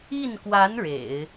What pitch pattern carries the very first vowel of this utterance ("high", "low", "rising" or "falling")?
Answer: falling